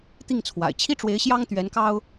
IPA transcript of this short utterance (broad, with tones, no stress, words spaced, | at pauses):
t̪i˥˩ŋt͡sʰwa̰˨˩ɪ̯ t͡ɕʰi˥ʈ͡ʂwe˧˥ɪ̯ɕjɑ˥ŋ t̪ɥɛ˧˥nkɑ˥ʊ̯